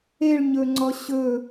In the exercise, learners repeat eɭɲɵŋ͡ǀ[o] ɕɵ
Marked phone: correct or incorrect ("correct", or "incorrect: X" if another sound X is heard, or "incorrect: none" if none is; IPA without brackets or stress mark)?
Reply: incorrect: ɔ